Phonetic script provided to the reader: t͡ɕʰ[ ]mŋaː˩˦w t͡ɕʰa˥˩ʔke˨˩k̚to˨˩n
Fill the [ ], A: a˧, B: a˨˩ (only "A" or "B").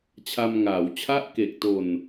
A